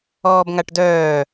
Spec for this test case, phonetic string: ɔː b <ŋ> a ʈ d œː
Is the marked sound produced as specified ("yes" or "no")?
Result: yes